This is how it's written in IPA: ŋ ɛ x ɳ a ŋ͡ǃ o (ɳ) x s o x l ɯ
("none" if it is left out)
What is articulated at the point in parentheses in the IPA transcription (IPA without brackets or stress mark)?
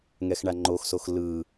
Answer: none